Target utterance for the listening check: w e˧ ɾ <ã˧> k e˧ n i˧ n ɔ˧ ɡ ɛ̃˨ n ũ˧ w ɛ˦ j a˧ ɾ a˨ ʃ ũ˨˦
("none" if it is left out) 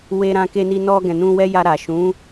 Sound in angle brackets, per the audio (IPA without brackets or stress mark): ã˧